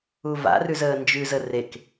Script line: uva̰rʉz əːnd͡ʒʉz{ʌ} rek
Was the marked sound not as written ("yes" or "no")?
yes